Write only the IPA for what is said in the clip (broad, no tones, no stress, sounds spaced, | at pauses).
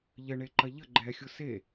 ʎ ə ɳ e ǃ ɐ ʎ ə ɡ͡ǃ ɛ xʲ ʊ s e